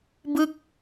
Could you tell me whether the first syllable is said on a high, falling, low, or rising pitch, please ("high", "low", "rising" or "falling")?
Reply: falling